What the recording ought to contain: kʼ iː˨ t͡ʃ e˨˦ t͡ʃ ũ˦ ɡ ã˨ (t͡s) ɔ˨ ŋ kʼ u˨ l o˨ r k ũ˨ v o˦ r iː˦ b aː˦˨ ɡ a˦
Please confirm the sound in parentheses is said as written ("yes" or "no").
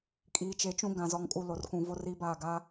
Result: no